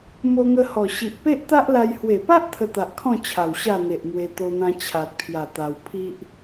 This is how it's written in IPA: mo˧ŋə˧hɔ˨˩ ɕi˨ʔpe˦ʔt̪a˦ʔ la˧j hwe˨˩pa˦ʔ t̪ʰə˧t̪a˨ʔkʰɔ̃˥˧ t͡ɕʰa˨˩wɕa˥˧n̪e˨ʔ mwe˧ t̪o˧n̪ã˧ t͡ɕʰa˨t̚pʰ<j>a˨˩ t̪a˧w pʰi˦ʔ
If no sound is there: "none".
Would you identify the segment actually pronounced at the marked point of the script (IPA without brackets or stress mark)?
j